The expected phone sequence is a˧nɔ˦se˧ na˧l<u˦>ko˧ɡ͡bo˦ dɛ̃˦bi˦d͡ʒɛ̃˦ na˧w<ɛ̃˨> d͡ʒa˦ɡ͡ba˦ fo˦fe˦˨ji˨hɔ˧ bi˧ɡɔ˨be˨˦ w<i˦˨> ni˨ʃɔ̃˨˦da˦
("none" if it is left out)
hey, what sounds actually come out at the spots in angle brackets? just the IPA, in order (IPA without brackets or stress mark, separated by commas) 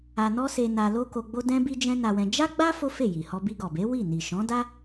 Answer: o˦, ɛ̃˧, i˦˨